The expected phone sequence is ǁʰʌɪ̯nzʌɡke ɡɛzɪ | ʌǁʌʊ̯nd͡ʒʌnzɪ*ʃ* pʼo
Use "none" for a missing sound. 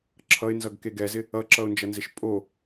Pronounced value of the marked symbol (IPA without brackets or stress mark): ʃ